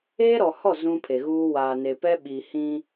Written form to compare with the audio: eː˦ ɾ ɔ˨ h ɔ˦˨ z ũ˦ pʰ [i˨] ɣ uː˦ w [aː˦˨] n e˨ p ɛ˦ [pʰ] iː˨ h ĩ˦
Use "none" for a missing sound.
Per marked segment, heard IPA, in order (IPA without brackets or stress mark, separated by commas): e˨, aː˨, ɓ